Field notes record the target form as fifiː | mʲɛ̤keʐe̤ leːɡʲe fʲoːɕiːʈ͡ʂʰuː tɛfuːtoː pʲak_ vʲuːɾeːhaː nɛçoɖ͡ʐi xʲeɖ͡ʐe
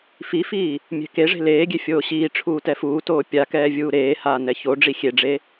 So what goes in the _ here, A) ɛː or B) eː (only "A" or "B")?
A